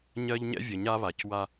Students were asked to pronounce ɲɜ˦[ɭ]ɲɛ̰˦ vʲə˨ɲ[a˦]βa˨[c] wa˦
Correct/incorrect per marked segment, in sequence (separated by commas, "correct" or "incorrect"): incorrect, correct, correct